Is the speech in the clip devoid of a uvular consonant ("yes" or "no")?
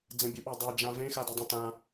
yes